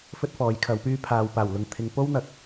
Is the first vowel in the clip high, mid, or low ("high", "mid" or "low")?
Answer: mid